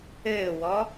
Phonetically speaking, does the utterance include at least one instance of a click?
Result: no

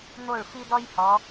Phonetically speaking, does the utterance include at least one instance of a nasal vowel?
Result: no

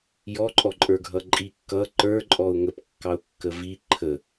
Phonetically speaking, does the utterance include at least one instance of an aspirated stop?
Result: yes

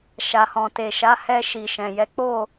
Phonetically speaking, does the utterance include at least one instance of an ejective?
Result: no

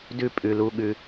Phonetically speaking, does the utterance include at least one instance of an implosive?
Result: yes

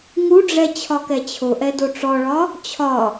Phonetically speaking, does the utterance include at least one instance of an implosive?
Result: no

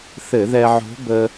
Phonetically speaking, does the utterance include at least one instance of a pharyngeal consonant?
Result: yes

